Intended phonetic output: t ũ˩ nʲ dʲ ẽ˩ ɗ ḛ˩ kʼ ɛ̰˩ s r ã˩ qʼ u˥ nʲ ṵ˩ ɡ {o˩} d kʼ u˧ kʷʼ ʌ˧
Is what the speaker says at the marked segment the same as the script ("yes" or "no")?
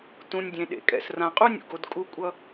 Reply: yes